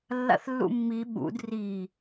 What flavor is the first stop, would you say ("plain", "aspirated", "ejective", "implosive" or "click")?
implosive